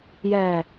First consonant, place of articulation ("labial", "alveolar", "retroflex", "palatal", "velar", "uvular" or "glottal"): palatal